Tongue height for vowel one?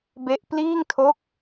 mid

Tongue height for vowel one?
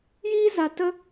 high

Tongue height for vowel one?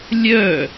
mid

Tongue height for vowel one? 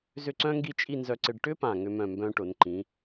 high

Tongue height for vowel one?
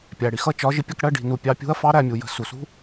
low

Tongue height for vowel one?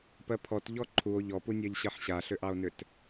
mid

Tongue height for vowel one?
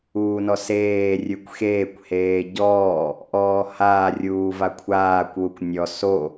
high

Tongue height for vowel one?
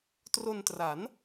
mid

